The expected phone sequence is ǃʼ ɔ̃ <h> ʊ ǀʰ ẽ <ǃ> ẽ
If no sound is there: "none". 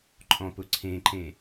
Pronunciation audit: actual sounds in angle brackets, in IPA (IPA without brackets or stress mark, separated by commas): p, ǃ